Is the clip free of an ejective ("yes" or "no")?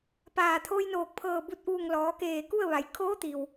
yes